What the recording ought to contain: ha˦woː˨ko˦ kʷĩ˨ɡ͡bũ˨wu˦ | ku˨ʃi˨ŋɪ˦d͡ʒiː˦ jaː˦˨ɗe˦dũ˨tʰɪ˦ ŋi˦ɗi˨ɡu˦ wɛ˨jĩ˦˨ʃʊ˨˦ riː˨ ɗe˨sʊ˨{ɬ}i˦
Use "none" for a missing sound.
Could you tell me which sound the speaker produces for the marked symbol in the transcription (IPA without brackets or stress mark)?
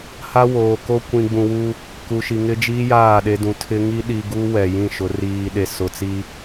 t͡s